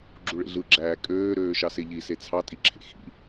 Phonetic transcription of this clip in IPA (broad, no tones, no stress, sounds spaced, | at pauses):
ɡ͡ǁ u ɭ ḛ ɮ ɯ ɡ͡ǁ æː kʼ øː ɾ øː ʃ ɑ s e ʎ i s e t͡sʰ ɑ tʼ i ǁʰ ḛ x ḭ